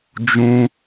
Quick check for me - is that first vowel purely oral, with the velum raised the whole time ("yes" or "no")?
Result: no